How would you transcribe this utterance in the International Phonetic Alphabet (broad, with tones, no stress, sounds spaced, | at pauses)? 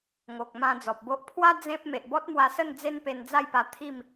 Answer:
ŋ o˨ k̚ m ã˧ d͡z ɔ˨ p̚ b o˦ ʔ pʰ w a˦ d͡z ẽ˦ p̚ m e˨ ʔ b ɔ˦ t̚ m w a˧ s ə˥˧ n d͡z e˦ n p e˧ n d͡z a˥˧ j p a˧ t̪ʰ i˥˧ m